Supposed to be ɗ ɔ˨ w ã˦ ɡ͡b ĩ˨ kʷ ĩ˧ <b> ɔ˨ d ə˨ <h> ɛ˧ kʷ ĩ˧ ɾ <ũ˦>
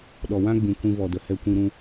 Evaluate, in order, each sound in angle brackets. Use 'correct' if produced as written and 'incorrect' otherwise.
incorrect: v, correct, incorrect: ũ˧

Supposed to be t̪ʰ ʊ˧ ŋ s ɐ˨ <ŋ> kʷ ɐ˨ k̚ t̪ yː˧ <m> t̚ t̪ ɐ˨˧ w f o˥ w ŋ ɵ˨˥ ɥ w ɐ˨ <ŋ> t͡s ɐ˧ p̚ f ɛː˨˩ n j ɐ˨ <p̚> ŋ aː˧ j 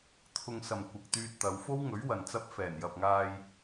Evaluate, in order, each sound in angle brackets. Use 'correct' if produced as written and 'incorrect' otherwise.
incorrect: m, incorrect: none, incorrect: n, correct

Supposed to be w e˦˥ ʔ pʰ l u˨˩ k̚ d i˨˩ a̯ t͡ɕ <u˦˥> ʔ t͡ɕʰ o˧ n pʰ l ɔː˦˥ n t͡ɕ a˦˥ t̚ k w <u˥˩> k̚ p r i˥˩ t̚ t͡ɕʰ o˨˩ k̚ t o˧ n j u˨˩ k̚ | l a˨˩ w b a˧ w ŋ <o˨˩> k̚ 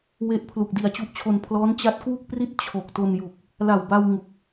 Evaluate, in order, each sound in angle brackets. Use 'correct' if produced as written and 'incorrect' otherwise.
correct, correct, incorrect: u˨˩

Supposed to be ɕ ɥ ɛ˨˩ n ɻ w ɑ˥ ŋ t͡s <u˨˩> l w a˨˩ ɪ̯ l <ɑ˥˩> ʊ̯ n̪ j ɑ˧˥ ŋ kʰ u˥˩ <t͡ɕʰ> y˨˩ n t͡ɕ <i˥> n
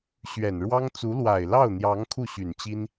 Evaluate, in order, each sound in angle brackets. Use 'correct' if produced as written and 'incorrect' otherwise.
incorrect: u˧˥, correct, incorrect: ɕ, correct

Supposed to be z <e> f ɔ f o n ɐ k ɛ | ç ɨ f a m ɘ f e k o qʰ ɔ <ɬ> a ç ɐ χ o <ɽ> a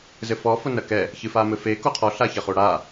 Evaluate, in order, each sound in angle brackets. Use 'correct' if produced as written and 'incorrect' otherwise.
incorrect: ɘ, correct, correct

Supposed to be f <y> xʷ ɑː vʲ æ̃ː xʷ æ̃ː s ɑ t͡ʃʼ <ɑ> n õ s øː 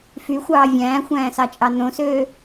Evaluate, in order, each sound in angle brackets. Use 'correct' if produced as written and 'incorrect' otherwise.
correct, correct

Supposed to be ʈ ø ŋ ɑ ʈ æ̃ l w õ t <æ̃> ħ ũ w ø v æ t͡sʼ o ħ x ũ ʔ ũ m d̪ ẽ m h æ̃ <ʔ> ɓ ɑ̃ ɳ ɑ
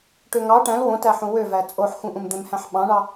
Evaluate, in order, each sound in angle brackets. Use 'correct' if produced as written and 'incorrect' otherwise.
incorrect: æ, incorrect: ħ

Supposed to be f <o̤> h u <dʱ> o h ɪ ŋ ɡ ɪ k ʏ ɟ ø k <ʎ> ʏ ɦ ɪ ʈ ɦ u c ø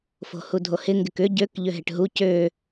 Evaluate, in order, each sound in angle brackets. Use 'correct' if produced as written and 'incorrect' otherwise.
correct, correct, correct

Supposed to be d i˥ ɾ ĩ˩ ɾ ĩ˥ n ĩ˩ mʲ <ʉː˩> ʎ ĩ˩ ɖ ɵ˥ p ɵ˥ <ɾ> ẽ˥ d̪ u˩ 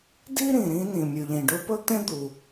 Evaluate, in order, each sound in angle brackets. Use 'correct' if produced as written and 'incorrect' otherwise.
incorrect: ʉ˩, incorrect: t̪

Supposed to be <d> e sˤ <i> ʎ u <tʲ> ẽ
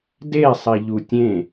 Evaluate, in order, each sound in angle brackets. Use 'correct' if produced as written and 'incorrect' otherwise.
correct, correct, correct

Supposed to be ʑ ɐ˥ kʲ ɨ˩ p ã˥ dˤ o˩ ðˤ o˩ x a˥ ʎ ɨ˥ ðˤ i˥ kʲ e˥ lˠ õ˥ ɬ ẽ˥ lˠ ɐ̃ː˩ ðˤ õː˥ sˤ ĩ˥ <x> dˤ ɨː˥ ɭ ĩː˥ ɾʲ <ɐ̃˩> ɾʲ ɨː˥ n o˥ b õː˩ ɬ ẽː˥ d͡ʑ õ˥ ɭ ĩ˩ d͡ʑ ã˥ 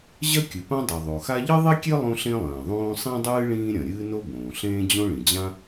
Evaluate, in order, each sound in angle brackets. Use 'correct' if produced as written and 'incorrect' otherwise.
incorrect: none, correct

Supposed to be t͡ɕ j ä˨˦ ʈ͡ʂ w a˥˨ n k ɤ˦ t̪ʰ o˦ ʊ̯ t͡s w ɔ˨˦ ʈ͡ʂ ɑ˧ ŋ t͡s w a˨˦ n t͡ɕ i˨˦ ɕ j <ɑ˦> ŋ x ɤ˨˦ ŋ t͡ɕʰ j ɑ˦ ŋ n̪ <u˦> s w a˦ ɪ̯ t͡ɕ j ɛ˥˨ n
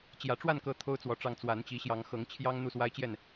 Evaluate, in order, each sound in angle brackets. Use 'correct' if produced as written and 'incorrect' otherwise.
incorrect: ɑ˨˦, incorrect: u˥˨

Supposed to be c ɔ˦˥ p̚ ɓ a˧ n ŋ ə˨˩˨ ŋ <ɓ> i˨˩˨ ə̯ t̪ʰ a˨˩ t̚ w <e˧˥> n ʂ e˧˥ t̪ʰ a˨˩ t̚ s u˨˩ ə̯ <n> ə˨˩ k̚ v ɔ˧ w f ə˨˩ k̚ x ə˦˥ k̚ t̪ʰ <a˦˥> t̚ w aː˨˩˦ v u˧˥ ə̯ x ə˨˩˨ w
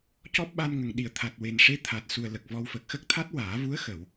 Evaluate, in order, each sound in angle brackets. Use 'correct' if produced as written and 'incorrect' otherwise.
incorrect: ɗ, incorrect: e˨˩, incorrect: l, correct

